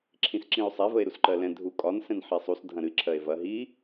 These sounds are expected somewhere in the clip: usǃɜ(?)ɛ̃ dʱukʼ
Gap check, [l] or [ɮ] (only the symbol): l